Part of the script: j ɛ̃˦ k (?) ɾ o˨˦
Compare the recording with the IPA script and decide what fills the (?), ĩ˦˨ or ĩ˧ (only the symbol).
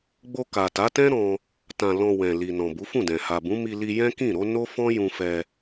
ĩ˦˨